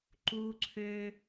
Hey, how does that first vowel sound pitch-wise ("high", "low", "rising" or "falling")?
high